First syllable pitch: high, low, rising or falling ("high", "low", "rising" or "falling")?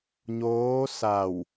rising